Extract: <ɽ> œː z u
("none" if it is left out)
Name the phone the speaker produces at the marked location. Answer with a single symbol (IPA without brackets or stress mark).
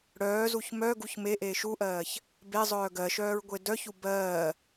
ɽ